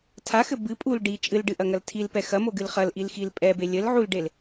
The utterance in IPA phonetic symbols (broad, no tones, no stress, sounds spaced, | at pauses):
tʰ a x ɘ b ɨ pʼ u l ɖ i t͡ʃʼ ɨ l ɖ ɨ ʔ ɐ ŋ ɐ l tʰ i l p ɛ x ɐ m o ɡ ɨ l χ ɐ l ʔ i l x i l pʼ ɛ b e lʲ ɘ l ʕ u l ɖ e l